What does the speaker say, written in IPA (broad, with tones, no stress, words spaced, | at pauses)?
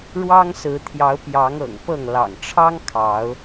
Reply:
ɻwɑ˦ŋsɹ̩˨˦t̪ʰjɑ˨˦ʊ̯ pjɑ˨˦ŋɤ̰˨˩ŋpɤ˥˨ŋ lɑ̰˨˩ŋʈ͡ʂʰɑ˦ŋ kʰɑ˨˦ʊ̯